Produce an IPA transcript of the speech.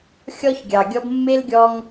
xʲɔ˦çɡʲɑ˨ɡʲɔ˦b mːe˦lɡʲɔ˦ŋ

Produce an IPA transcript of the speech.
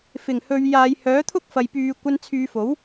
fɪ˨˩ŋhɵ˨˧ɥjaː˨˧j hœː˨˥t̪ʰʊ˥k̚fɐ˨j pyː˨˧kʷɐ˧nt͡sʰyː˨˧fo˨˥w

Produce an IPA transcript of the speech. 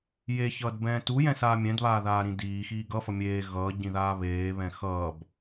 jeçʌːdbɛ̃ː tujɛ̃saː mʲɛ̃dβaːðaːɾĩ diːxiː ɡʌfʌ mʲeː ɣʌːɟĩðaː βeːβɛ̃ xʌːb

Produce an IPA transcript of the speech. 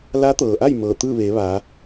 la˧˥t̪ɤː˩ʔa˥˨j mɤː˧˩t̪ɯː˥˨ʋeː˩˧ ʋaː˩˧

